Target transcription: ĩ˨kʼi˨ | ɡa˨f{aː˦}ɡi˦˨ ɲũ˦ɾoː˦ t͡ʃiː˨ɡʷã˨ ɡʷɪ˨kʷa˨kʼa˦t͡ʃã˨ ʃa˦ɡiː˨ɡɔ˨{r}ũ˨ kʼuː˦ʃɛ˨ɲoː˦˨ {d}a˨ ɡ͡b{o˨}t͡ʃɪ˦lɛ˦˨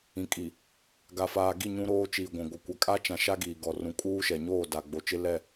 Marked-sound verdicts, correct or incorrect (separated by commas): incorrect, correct, correct, correct